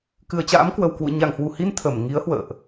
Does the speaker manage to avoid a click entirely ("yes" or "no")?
yes